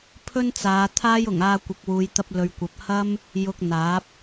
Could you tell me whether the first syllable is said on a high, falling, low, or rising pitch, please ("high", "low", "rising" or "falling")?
high